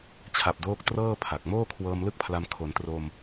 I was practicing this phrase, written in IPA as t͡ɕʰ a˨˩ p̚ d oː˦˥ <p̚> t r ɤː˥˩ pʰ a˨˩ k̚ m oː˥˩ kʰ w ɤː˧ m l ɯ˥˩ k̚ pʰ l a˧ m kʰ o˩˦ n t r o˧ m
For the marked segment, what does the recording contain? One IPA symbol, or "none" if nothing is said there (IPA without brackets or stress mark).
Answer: k̚